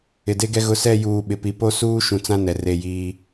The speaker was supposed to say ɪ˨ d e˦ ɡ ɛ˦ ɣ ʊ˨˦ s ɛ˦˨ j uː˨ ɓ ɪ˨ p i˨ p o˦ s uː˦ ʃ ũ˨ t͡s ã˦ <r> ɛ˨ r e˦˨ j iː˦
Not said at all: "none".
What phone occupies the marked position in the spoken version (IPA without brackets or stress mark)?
n